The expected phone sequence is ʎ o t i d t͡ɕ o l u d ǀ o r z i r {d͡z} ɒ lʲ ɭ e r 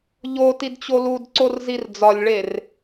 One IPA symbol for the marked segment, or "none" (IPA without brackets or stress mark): d͡z